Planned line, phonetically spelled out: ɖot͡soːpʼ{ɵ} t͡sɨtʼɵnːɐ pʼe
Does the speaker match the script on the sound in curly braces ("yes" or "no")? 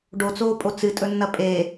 no